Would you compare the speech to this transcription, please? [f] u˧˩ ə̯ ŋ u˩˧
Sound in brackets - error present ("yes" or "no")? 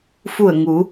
no